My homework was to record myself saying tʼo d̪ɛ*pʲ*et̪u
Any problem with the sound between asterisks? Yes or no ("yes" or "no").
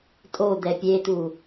no